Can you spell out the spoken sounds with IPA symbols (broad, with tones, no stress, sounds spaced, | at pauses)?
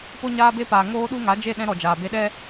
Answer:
p o˧ ɲ aː˧ b e˧ p aː˨ ŋ oː˦ ɗ u˦ ŋ a˨˦ d͡ʒ e˦˨ ɗ ɛ̃˧ ɾ ɔ˨ d͡ʒ aː˨ b e˧ ɗ ɛ˦